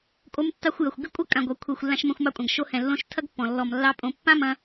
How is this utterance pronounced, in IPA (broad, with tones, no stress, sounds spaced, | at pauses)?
kʼ o˧ m tː ɑ˧ xʷ j ɐ˨ xʷ ɡ ɪ˦ kʷʼ ɐ˦ kʼ ã˨ ɡʷ ɑ˨ kʷʰ ɛ˨ xʷ lː ã˧ ʃ m ɐ̃˧ xʷ m ɑ˧ kʷʼ ã˨ ɡ ʃ o˧ h ɛ̃˨ lː õ˧ ʃ tʰ ɐ˦ ɡ pː ɔ̃˨ lː ɔ˨ m lː ɑ˦ pʼ õ˧ pː ã˦ m ɐ̃˧